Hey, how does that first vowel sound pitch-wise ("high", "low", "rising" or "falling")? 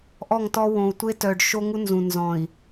falling